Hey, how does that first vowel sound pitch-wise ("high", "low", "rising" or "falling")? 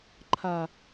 low